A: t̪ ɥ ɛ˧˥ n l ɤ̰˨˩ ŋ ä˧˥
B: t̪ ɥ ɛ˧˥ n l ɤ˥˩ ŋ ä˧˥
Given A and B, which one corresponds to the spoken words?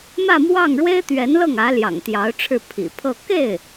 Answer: B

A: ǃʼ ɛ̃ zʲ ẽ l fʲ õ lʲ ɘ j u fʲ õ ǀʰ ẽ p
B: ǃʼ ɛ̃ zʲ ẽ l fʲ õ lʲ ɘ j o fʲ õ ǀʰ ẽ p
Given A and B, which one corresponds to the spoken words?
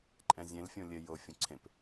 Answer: B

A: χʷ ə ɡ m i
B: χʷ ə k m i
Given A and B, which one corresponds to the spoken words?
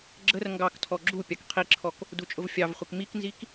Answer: B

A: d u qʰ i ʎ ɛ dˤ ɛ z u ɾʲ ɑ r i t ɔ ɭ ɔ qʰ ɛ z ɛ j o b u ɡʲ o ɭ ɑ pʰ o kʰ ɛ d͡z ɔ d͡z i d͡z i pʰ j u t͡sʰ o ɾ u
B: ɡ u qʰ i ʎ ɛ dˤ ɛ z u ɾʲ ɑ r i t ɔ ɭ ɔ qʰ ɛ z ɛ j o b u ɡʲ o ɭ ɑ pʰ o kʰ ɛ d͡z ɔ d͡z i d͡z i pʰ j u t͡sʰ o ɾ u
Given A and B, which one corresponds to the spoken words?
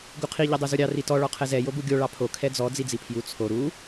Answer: B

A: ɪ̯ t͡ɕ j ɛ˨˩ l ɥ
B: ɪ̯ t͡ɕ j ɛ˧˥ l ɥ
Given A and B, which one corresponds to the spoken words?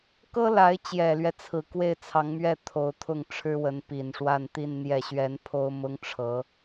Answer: A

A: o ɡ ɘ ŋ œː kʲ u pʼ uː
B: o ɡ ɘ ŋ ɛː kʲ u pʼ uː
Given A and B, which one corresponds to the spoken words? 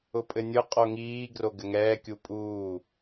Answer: B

